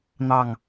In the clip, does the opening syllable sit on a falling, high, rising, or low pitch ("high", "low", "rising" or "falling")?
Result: falling